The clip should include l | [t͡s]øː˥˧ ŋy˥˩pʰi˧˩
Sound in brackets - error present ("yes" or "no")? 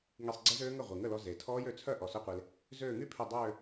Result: yes